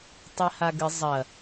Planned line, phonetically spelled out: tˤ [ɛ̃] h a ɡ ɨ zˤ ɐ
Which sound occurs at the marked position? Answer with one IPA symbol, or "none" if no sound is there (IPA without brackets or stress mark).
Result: ɛ